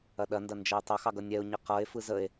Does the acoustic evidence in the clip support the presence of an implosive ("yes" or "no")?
yes